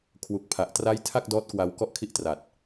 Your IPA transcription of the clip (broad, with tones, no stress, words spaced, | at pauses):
kʰwu˨˩k̚ pʰa˨˩ʔtra˥˩j tʰa˥˩k̚dɔː˦˥t̚kwa˧w kɔ˥˩ʔkʰi˥˩ʔtra˨˩t̚